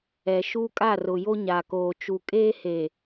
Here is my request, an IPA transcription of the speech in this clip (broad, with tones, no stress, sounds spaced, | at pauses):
ɛ˨ ʃ uː˦ kʼ a˦˨ r ʊ˨ j o˦ ɲ a˨ k oː˨ t͡ʃ u˨ kʼ eː˦ h eː˨